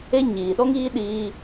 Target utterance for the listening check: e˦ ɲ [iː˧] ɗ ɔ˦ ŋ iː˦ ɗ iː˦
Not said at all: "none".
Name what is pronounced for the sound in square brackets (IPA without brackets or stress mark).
iː˨